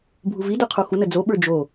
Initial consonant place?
labial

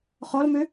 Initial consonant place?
uvular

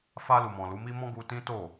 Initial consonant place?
labial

